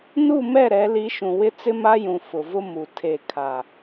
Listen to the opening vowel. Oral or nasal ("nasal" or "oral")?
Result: oral